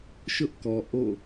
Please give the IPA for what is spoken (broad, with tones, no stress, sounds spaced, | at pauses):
ʃ ʊ˦ ʔ k ɔ˨ ʔ o̰˦˨